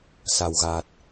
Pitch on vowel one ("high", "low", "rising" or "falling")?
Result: low